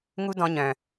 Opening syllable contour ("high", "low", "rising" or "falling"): high